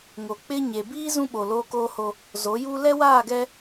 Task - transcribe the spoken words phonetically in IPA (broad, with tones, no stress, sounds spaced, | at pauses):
ŋ o˨ k͡p ɪ˦ ɲ e˨ b iː˦ z ũ˦ ɓ o˨ l oː˦ k oː˦ h o˦ | z o˨˦ j uː˦ l ɛ˦ w aː˦˨ ɡ ɛ˦